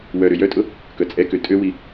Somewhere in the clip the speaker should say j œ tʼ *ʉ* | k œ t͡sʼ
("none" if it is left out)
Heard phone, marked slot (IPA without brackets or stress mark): ʊ